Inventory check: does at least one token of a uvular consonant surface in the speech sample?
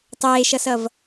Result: no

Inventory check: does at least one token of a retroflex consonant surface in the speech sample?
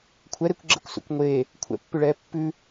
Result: yes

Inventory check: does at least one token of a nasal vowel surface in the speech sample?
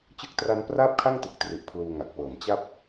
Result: no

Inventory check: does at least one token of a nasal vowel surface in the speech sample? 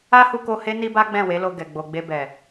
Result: yes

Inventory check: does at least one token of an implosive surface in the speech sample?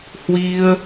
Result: no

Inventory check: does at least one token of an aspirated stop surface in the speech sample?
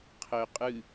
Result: yes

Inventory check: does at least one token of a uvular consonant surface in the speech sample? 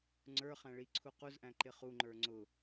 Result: yes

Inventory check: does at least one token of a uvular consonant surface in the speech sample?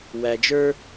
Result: no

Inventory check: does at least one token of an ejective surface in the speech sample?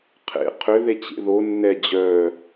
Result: no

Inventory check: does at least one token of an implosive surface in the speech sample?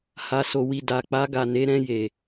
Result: no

